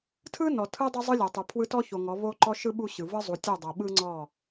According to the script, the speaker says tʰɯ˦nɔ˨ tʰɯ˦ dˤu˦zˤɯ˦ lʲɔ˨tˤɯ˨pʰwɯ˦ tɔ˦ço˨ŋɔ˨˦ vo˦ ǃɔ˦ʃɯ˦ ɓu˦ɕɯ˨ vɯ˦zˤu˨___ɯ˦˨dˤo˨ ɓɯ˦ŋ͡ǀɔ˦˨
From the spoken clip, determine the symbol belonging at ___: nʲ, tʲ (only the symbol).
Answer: tʲ